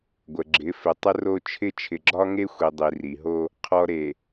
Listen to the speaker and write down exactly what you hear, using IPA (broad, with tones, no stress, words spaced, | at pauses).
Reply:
ɡʷə˨ ɡ͡ǁɪ˨˦fɪ˨ tˤə˦ro˦t͡ʃʰɪ˦ t͡ʃʰɪ˨ɡ͡ǁɒ˦ŋe˦xʷi˨ dˤi˨ri˨ɦo˦ | qʰɔ˨ɾe˨